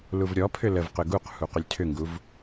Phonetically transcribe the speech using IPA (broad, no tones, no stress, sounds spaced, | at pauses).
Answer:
l u v ɾʲ ɔ pʰ ʏ l ə v q ʏ ɡ u q h u q ʏ lʲ tʰ ʏ ŋ ɡ u v